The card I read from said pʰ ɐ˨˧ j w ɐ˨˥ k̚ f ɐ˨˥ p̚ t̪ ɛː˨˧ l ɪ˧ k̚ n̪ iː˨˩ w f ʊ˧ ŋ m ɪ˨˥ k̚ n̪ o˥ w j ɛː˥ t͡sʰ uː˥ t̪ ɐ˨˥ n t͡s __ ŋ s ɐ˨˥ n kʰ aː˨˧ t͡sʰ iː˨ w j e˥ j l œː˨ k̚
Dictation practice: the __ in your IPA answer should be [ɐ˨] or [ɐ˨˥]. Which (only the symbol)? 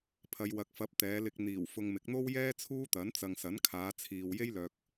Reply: ɐ˨